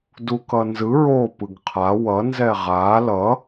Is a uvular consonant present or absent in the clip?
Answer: present